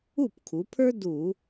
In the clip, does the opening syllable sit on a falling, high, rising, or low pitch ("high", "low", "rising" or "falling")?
falling